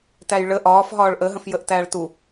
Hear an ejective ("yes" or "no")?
no